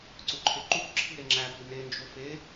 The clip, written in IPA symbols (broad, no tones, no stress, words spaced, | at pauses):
ǀuǃʰeǃukǁʰi ɾeŋ͡ǁæpi nend͡ʒo fe